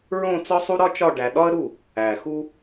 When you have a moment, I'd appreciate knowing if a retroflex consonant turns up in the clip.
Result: yes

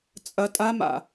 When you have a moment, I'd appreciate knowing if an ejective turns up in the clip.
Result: yes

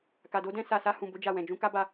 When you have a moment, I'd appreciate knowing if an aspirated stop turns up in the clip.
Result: no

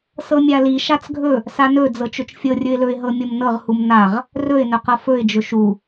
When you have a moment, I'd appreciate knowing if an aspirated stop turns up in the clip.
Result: no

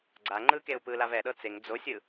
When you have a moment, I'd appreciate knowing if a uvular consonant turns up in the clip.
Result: no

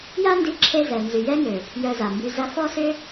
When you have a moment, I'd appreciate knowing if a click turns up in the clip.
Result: yes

